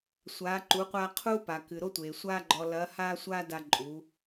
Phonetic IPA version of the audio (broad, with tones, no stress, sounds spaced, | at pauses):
sʷ aː˩˧ ǃ u˩˧ qʷ aː˧ qʰ uː˥ p a˩ k ɨ˩ ɾ o˥ tʷ eː˩ sʷ aː˥ ɡ͡ǃ ɔ˧ l ɐː˧˥ h aː˥ sʷ aː˥ d a˧ ǃʼ u˩˧